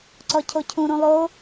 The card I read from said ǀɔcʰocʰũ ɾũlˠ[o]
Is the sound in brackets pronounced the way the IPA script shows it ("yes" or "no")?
yes